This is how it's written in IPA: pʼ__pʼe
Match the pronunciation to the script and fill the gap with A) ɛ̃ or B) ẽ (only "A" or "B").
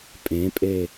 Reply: B